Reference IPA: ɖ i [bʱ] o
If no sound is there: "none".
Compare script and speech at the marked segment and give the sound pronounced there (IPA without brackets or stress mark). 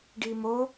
m